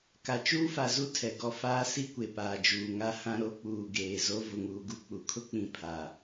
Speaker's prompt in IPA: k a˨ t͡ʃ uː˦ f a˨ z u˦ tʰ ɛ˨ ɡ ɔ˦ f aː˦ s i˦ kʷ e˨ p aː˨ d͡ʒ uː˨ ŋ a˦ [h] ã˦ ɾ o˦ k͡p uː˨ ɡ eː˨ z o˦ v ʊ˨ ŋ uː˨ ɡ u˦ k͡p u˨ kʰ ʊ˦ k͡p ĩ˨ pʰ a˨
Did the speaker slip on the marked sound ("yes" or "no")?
no